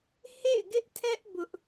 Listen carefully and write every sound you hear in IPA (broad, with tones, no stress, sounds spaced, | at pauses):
h ḛ˦˨ ɪ̯ ɡ ɪ˦ ʔ tʰ ɛ˦ ʔ b ʊ˦ ʔ